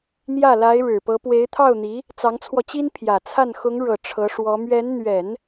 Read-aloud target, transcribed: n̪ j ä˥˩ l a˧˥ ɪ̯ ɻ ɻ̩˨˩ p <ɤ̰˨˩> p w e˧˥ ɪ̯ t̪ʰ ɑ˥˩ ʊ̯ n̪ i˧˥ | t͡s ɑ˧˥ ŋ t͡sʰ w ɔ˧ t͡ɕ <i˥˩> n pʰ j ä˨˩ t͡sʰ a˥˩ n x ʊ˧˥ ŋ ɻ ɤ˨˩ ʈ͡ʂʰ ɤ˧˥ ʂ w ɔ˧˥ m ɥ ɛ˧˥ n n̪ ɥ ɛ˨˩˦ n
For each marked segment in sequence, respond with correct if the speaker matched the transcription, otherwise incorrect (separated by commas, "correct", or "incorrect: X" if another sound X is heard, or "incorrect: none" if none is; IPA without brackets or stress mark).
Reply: incorrect: ɤ˧˥, incorrect: i˥